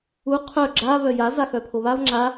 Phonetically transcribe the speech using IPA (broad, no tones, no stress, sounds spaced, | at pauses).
u qʰ œ ɡ͡ǁ a β œ j a z a x œ pʰ o β a v ŋ͡ǁ a